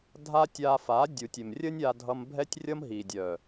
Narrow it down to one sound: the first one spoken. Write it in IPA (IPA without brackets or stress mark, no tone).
dʱ